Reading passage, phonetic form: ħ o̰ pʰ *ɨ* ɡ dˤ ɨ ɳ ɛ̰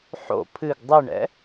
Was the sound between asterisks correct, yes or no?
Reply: yes